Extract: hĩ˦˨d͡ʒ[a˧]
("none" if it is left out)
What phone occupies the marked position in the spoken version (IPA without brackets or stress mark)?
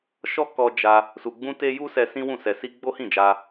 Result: a˧